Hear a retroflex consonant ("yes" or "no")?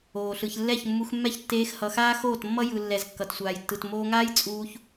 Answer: no